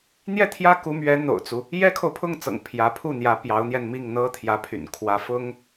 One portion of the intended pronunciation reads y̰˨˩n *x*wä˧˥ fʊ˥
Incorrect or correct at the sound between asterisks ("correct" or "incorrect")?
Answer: incorrect